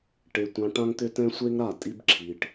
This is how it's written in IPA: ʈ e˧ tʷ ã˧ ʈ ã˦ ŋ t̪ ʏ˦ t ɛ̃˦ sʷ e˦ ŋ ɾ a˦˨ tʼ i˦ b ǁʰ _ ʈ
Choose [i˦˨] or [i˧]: i˧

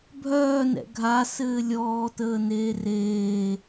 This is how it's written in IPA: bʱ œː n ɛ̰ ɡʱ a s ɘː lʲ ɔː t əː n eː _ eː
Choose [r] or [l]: r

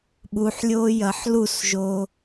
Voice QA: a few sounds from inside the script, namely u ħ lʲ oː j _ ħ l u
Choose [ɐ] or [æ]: ɐ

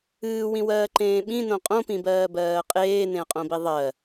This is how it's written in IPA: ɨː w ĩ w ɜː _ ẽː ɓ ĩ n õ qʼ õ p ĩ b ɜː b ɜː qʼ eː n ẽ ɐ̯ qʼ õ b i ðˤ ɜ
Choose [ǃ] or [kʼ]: ǃ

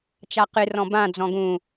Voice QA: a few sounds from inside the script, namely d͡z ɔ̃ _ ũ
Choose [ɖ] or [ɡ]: ɡ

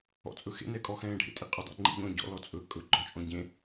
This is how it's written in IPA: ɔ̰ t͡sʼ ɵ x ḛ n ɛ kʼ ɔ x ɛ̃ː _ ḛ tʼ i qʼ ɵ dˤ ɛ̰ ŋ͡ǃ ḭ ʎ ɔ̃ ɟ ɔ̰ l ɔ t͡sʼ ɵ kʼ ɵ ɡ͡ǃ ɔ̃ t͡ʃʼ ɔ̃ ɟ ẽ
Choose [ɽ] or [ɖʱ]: ɖʱ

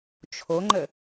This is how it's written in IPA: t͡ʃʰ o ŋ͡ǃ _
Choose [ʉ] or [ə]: ə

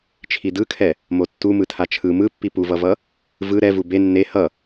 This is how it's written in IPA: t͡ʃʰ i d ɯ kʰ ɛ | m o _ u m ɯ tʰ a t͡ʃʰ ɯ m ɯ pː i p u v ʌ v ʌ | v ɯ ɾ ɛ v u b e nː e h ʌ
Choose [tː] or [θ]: tː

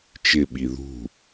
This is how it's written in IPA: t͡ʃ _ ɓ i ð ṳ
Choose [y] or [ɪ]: ɪ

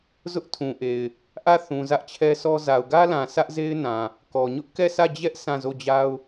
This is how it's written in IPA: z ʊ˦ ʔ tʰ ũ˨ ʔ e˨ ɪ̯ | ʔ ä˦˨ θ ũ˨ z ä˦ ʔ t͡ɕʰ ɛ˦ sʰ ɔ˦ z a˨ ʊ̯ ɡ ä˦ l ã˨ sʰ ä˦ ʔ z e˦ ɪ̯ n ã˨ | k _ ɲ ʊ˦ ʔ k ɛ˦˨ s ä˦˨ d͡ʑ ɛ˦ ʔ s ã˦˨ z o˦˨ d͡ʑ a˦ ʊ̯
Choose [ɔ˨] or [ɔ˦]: ɔ˨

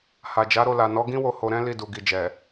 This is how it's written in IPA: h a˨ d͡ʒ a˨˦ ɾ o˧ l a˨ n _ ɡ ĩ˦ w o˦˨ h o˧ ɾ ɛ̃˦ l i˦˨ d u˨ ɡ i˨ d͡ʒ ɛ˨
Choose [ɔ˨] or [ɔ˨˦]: ɔ˨˦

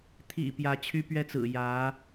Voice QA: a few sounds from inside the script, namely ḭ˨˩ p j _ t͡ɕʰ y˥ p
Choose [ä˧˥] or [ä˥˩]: ä˧˥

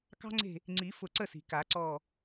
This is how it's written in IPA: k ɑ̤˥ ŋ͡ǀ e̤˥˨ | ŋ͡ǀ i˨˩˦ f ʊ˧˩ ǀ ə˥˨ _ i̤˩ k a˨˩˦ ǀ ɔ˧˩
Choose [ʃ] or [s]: s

